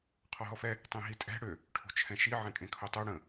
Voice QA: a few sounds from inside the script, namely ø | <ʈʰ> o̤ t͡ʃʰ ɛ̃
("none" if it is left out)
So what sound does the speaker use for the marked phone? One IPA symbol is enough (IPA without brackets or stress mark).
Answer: ʈʰ